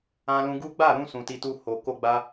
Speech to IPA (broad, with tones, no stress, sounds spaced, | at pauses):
ã˧ l ũ˧ ɡ u˦ ɡ͡b a˦˨ ɾ ũ˧ s ũ˨ t i˧ t u˧ h o˨ k o˧ ɡ͡b a˧